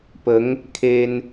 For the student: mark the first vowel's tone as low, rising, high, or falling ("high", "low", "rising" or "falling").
rising